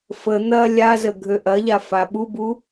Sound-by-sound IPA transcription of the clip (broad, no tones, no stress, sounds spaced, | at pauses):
f ə n̪ ɐ lʲ a z ə ɡʱ ø ʔ ɐ ʎ a f a ɓ u b u